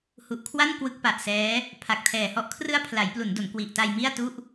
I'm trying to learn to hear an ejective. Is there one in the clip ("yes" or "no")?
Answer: no